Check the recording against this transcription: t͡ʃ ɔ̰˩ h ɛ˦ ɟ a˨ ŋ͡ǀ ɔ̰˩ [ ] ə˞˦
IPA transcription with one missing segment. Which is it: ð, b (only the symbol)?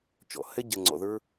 ð